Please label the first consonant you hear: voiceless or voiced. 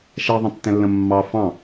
voiceless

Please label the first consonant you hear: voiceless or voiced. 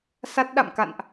voiceless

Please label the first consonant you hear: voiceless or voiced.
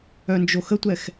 voiced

